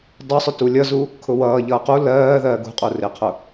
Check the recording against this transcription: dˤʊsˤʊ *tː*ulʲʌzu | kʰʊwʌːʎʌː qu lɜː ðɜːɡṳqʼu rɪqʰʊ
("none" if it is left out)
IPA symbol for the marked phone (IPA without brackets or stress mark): t